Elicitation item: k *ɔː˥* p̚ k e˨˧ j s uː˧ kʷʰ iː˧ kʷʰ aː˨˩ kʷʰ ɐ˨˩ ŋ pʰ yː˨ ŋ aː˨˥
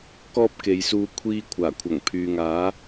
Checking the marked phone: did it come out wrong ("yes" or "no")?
no